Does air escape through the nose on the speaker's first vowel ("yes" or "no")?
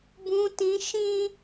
yes